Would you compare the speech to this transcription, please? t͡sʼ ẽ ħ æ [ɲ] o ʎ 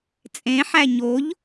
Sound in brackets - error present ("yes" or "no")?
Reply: no